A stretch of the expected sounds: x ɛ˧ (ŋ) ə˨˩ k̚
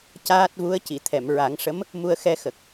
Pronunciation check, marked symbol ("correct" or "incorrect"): incorrect